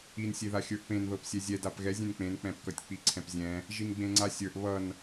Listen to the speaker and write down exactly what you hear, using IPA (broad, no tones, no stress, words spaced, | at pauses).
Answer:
insʲeða xʲə˞ʔpẽnðɤp sʲɛzʲɛdap ɣɛzʲẽn k͡pẽnk͡pɛ̃p kʌtʲk͡piǀʰɛ̃pzʲɛ̃ | ʒinɡ͡bẽŋ͡ǀasʲə˞ʔ βʌn